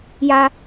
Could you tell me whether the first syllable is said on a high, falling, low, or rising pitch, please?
high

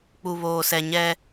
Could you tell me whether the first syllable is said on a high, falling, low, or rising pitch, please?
low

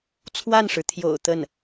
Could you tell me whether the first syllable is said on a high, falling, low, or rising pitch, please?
falling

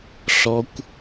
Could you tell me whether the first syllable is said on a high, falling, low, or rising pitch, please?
high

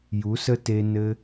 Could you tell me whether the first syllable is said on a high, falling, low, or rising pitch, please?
rising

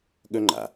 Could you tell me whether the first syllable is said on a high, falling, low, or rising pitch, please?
high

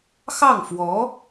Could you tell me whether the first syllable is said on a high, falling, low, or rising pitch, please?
falling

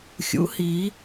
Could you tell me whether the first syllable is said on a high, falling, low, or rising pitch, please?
rising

